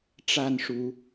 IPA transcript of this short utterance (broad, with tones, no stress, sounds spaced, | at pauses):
ʈ͡ʂ a˥˨ n ʂ u˨˦